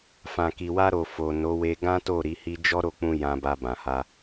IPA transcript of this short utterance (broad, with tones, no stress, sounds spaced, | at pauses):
f ã˨ k i˨ w a˧ ɾ o˨ f o˨ n o˨˦ w e˧ ɡ ã˦ t o˦˨ ɾ i˨˦ h i˦ d͡ʒ ɔ˦ ɾ o˦˨ k͡p ũ˧ j ã˧ b a˧ b ã˨ h a˧